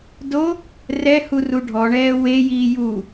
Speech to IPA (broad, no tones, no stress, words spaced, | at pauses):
do | rɛhu ruɖʱɔɳɛː wejiː ju